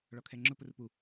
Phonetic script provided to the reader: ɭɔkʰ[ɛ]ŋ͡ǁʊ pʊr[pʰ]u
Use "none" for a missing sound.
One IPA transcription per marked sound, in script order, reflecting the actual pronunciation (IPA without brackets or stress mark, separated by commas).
ɛ, p